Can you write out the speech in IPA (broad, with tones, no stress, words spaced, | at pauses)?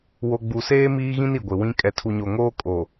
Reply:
wo˨ɡ͡bu˨seː˦ miː˦ɣĩ˦n i˨ɡʷɪ˨wĩ˦ kʼɛ˨tʰu˨ɲo˨ŋoː˦ kʼo˨